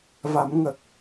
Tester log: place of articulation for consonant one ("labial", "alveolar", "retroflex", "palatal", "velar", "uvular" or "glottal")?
labial